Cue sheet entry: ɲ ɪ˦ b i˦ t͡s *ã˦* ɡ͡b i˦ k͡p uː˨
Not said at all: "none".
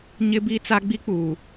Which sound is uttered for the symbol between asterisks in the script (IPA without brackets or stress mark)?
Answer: a˦